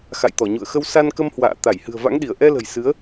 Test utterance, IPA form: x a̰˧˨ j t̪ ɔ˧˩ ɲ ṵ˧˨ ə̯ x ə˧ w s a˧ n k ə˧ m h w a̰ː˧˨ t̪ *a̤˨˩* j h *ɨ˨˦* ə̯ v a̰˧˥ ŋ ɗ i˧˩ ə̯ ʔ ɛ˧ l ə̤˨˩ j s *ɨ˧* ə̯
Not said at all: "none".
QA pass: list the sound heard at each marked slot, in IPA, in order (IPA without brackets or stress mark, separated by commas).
a˧˩, ɨ̤˨˩, ɨ˨˦